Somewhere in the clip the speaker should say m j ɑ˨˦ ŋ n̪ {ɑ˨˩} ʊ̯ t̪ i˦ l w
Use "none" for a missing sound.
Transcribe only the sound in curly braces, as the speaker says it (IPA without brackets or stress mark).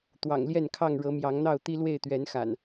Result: ɑ˥˨